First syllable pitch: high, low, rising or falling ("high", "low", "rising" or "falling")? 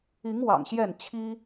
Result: rising